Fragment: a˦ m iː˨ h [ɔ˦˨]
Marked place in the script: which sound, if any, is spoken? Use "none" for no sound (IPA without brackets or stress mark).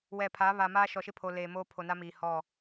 ɔ˦˨